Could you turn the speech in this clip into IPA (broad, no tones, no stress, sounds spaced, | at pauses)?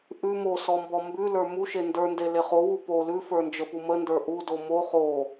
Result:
ʔ ʉ m o s ɔ m b ɔ m b ʉ l ə˞ m u ʃ e n d ə˞ n d e l e χ o w u p o l ʉ f ə˞ n d͡ʒ ə p u m ə n d ə˞ ʔ u d o m o χ o